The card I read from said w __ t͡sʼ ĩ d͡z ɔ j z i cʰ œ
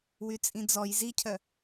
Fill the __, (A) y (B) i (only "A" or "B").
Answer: A